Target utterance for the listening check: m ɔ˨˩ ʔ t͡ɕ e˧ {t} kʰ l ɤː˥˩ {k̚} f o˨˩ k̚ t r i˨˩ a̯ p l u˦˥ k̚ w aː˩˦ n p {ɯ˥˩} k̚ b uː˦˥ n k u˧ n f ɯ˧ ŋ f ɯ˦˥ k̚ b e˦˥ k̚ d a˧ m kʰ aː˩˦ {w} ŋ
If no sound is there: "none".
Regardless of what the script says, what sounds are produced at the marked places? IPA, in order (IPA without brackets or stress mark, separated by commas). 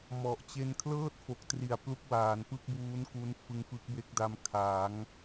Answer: n, t̚, ɯ˥˩, none